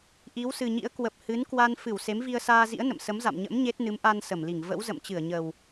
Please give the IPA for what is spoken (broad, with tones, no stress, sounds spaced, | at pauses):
ʔ i˨˦ w s ɨ˨˩ ɲ ḭ˧˥ ə̯ k w ə˨˩ p̚ h ɨ˨˦ n k w a˧ n f ɨ˧˩ w s e˨˦ m v i˧ ə̯ s aː˧ z ḭ˧˥ ə̯ n ə̰˧˨ m s ə˨˦ m z a̰˧˨ m ɲ ə̰˧˥ m ɲ e˦˥ t̚ n ɨ˨˦ m ʔ a˧ n s ə˧˩ m l i˧˩ ŋ v ə̰˧˥ w z ə̰˧˨ m t͡ɕ ɨ˧˩ ə̯ ɲ ə˨˩ w